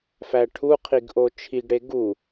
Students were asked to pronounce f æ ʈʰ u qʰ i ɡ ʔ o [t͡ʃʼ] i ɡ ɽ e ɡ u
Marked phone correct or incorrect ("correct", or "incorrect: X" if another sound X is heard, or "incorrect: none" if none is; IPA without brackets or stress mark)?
incorrect: t͡ʃʰ